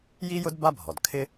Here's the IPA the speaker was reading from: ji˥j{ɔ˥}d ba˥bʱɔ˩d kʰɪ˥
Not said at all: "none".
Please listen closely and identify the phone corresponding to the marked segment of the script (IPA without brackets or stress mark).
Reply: ʊ˥